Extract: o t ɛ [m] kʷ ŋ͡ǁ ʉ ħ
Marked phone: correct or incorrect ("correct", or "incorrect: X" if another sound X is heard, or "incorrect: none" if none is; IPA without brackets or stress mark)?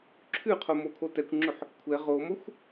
incorrect: none